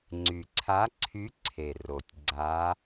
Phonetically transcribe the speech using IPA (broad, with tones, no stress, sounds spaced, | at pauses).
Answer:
ŋ͡ǀ y˨˩ ǀʰ a˧˥ ǀʰ y˧˥ ǀʰ e˨˩ r o˨˩ tʲ ɡ͡ǀ a˧˥